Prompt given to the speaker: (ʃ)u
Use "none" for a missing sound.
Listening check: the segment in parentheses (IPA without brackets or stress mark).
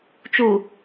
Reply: t͡ʃ